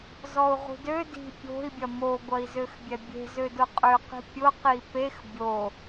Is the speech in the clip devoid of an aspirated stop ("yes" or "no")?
yes